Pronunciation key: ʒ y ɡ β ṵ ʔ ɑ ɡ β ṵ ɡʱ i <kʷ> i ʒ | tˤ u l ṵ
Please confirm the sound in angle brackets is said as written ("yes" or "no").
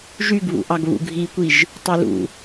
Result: yes